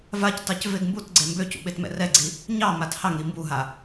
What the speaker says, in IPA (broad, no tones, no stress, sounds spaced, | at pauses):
v a c t ɑ c v e ɡ m b u t ɡ͡ǀ e m b ø c ṵ ɓ e t m ɛ̰ r ɛ ɡ͡ǀ i | ɲ ɑ m a t h ɑ ŋ ɾ i m b u ɦ a